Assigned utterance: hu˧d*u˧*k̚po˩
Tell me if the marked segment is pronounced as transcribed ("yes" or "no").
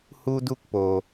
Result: yes